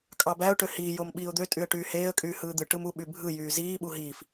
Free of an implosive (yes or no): no